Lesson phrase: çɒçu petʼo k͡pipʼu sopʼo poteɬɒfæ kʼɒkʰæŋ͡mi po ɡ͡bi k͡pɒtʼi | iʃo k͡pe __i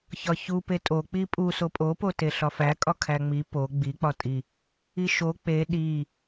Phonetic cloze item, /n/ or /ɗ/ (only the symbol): ɗ